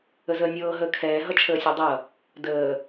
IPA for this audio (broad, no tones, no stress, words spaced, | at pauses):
əzəːnʲɤː ɦəːkʰɛː ɦʌt͡ʃʰəːsʲodˤʌ | dəː